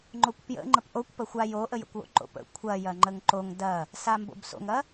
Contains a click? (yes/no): yes